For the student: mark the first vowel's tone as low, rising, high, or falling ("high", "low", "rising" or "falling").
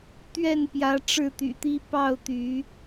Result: falling